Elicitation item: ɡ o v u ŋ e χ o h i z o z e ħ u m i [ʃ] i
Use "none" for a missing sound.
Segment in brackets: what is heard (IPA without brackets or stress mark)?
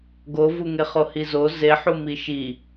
ʃ